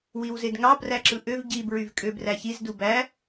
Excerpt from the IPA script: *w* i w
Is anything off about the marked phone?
no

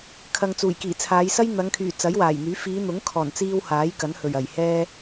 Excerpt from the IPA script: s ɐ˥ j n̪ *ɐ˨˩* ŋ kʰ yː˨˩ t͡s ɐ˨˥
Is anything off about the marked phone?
yes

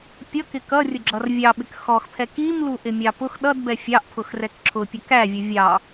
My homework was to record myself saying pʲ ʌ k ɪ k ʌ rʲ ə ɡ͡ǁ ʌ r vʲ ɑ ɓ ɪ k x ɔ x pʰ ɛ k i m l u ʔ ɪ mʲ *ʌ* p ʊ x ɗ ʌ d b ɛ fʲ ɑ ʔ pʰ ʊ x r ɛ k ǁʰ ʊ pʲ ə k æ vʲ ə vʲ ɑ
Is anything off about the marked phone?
yes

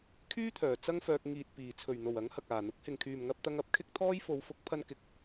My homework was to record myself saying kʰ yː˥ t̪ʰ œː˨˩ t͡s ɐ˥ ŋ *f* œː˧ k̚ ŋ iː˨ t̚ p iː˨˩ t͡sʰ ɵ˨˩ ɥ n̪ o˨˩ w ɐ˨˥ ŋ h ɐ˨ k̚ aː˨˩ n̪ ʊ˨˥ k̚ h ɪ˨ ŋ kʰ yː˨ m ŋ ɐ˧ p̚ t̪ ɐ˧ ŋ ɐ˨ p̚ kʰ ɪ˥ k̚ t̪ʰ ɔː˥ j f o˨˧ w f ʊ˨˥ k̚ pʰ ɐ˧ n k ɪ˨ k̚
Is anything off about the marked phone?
no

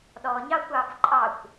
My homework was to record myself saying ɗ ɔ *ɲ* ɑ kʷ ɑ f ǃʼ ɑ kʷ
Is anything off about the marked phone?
no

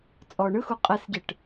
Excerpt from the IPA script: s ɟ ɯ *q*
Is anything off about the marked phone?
yes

